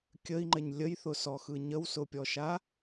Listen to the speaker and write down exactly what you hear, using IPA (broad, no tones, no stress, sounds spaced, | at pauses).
kʲ ə i̯ ŋ͡ǃ ɘ ɲ lʲ ə j θ ʊ s ɔ x ɯ ɲ ə w s ʊ pʲ ɔ ʃ a